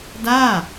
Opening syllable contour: falling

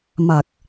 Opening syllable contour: low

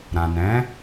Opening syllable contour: low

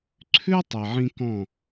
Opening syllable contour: high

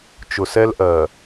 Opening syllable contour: low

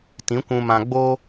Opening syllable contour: rising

